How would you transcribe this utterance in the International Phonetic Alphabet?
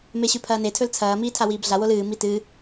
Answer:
meɕʉpʰɐːne tʰɵlt͡sʰɐː miːtʰawiːbɮa wolɨː mitɨ

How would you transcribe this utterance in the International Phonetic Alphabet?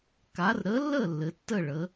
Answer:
ka˨˥r ɾə˨˥lːə˥˨ lːɘ˩˧tːə˥˨ɭə˩˧

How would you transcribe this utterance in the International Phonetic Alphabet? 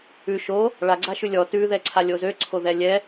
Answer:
ʉ ʃo | ɭa ɡ͡ǀaʃʉlʲɔ tʉ ðɛǀʰalʲozø ǀʰoðɛlʲɛ

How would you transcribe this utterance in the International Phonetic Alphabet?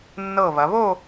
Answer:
nːɤ˧˩βɐ˩˧βo˥˧

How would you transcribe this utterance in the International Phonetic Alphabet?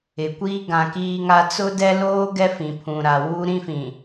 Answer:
ɪ˨kʷiː˦ ɡã˨kiː˦ŋa˦ t͡sʊ˦dɛ˦loː˦ ɡɛ˦fĩ˨pʰũ˨ɾa˨ wuː˦ɾĩ˦fĩ˨

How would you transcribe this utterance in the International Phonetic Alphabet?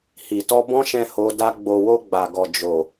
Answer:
hi˨tɔ˧ bɔ̃˦ʃɛ̃˧ ho˧ da˧ ɡ͡bo˨wo˧ ɡ͡ba˨ɡɔ˨ d͡ʒo˨

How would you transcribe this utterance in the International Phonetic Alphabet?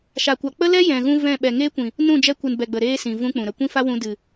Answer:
ʃa˨kʷa˨ k͡pə˦lɛ˦ jɛ̃˨ɣũ˧ vɛ̃˦˨ ɓɛ˨ŋeː˦kʷĩ˨ | nũ˦˨d͡ʒɛ˧kʷɨ˨n bɛ˨ɡ͡bə˨ ɾeː˦sĩ˨ vũ˦k͡pũ˨ɾə˧ kʷĩ˦fa˦wũ˧ dɨ˨

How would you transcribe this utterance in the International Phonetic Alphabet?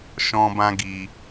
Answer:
ʃɔ̃˦bã˦ɡi˧

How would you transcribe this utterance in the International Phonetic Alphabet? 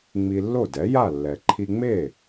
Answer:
ŋ͡mi˧lːo˥˩dɛ˩˥ ja˥˩lːɛ˩ ǃʰi˧ŋ͡me˥˩

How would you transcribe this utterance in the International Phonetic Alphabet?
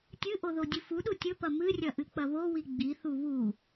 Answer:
tʲɨʔoðo dʲɨfuɗu tʲɵpɐ mɨrʲɐ ʔɨk͡pɐβowi ɡ͡bi θuβu

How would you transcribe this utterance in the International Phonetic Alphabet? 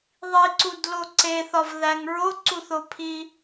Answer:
ðˤiǀudlo ǀeθɒvðæŋ ɹoǀuθopʰi

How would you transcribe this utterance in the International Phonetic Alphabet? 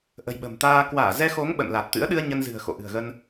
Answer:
ʔə̤˨˩jɓə̤˨˩mt̪aː˧ kwaː˧˩zɛ˧xo˨˦ŋ ɓə̰˧˨nla˨˩t̚t̪ɨ̰˧˥ə̯ ɗɨ˧ə̯ ɲə˧nzɨ̤˨˩ə̯xo̰˧˨ ʔɨ̤˨˩ə̯ɣə˧n

